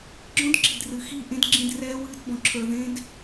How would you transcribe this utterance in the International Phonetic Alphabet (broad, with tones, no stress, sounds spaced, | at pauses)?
ɡ͡ǁ ɔ̃˦ d ǁ i̤˨ d r ɨ˨ x i˦˨ ʔ ẽ˦ d ɡ͡ǁ ĩ˦˨ d r ɛː˦ w ɨː˦ d b ɔ̃˧ ǁʰ ə˞˧ ð ẽ˦ d